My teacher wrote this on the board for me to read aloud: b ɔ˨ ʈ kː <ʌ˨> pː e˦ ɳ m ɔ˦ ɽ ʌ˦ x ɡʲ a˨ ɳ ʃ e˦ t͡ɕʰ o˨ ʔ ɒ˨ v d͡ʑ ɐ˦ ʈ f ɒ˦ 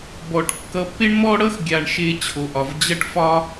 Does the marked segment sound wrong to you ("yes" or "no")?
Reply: no